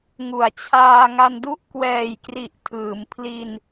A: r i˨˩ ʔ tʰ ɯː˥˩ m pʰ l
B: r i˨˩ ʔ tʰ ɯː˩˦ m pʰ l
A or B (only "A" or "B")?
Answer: B